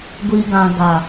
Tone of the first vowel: low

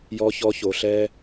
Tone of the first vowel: high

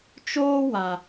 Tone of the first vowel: high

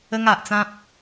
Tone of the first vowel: high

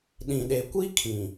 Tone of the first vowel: low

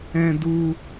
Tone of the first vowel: high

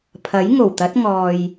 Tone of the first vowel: rising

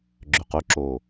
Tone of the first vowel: low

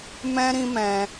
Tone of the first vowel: high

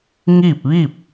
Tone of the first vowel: falling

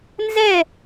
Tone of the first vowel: falling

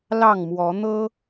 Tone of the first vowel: falling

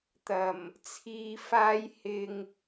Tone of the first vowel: low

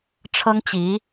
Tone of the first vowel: high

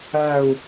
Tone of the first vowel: falling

